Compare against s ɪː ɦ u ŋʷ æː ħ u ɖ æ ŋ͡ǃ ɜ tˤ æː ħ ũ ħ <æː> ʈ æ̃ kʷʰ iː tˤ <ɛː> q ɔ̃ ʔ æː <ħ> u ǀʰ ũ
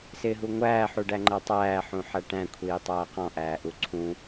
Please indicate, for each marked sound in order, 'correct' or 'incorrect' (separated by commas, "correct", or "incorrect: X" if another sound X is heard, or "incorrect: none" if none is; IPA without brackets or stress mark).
incorrect: æ, incorrect: æː, incorrect: ʔ